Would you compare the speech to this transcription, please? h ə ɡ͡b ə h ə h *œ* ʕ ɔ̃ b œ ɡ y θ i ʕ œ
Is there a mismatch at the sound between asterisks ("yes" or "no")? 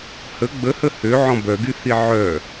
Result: yes